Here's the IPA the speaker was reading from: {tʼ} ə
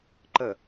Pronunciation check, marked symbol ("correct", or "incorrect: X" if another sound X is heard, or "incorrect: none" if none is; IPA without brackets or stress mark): incorrect: ǃ